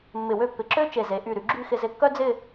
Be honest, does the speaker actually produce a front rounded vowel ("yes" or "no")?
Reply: yes